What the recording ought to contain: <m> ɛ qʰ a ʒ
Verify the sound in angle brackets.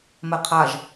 correct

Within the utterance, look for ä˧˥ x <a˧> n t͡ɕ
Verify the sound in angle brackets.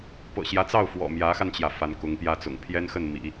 correct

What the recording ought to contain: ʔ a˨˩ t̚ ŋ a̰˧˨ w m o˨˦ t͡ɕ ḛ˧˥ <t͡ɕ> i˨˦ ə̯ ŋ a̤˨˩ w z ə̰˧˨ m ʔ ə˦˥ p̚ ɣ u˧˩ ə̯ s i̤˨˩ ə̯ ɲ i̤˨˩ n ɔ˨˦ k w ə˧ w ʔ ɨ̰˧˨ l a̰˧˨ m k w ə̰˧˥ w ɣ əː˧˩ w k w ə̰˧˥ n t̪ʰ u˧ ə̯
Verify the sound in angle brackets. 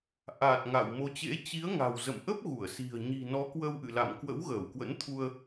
correct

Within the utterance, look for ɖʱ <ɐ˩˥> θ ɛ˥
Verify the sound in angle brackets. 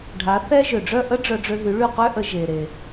incorrect: a˩˥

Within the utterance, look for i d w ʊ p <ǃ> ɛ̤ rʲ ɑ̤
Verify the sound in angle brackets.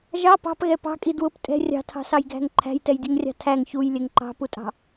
incorrect: tʼ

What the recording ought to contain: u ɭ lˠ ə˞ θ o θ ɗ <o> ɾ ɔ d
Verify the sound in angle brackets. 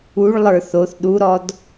incorrect: u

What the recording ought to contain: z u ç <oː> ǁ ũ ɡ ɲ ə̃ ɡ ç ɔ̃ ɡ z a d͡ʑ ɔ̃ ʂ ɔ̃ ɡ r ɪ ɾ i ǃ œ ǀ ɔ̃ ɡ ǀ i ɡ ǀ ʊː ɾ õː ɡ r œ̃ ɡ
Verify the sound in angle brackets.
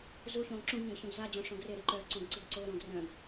incorrect: õː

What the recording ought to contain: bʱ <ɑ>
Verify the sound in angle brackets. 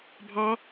correct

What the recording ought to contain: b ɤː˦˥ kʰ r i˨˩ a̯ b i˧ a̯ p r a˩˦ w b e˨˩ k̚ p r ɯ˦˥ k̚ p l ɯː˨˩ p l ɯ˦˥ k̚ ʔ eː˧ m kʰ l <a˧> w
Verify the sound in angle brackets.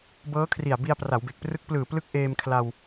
correct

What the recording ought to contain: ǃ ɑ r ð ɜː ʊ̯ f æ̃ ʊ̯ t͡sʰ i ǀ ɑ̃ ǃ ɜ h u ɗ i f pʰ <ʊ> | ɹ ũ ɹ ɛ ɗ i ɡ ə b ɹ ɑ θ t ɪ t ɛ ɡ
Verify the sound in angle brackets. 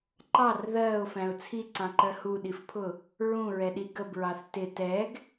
correct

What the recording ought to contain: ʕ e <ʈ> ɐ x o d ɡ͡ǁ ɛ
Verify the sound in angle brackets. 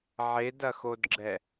incorrect: d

